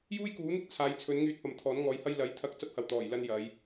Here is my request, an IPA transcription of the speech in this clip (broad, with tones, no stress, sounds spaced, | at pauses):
j uː˥ j k uː˨˥ n̪ ɪ˥ k̚ t͡sʰ aː˨˧ j t͡sʰ ɵ˨˥ n ŋ yː˧ t̚ p ɐ˨ m t̪ʰ ɔː˨˥ n ŋ ɔː˨˧ j h ɐ˥ j l ɐ˨˥ j t̪ʰ ɐ˧ k̚ t͡s ɐ˥ p̚ h ɐ˨ w t̪ ɔː˨˩ j l ɐ˧ n j ɐ˨˧ j